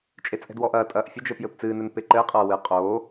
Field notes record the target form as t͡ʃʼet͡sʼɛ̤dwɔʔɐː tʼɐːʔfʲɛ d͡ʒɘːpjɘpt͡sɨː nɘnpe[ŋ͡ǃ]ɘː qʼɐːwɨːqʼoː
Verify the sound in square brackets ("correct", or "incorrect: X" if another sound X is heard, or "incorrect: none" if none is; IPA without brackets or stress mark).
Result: incorrect: ǃ